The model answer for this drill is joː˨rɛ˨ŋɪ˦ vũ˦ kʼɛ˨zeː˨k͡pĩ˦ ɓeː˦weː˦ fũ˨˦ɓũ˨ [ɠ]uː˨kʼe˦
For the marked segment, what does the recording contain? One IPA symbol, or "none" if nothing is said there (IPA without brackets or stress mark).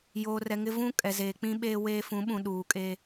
ɗ